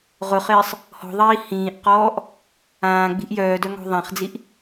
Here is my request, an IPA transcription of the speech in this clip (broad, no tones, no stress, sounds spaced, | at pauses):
ʁ ʊ χ ɪː sˤ | h ɔ̤ ðˤ iː h ĩː ʔ q ɔː ʔ | ãː ɡ͡b i̤ ʔ j œː d œ ŋ ɔ̤ ðˤ ã χ d͡z i ʔ